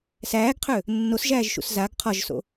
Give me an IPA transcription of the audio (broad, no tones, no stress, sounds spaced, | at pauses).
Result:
s æː ɡ qʰ ø | nː o s ʒ æː ʒ ʃ ṵ s z a ɡ qʰ ɒ ʒ s o̰